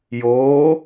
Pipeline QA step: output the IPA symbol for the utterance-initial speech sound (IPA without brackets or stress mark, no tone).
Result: j